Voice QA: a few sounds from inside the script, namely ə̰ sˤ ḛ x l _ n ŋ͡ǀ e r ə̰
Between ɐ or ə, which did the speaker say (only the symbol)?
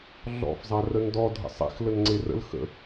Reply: ə